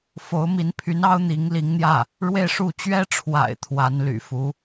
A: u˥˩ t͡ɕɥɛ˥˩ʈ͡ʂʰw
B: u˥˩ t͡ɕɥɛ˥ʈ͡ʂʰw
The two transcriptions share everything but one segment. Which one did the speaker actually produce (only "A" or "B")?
B